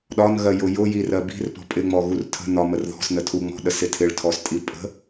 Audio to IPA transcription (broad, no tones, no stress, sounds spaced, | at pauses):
ɗ ɒ n ɣ ɜ j ʊ j ʊ j i r ɜ b i̤ r p ɔ̤ pʼ ɪ ŋ͡m ɔ ɣ u r tʰ ə̤ n ɒ m ə r ð ɔ̤ s n ə tʰ u ŋ͡m ɔ̤ ɗ ə s ɪ tʰ ɪ ɭ tʰ ɔ s tʼ i pʼ ə̤